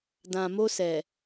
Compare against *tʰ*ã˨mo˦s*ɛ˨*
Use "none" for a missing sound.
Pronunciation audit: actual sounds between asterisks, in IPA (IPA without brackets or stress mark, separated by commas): d, ɛ˨